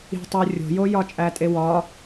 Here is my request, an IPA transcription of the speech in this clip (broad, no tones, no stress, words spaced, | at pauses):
i̤tˤu rʲo̤jo jɒt͡ʃʼætʼewɒ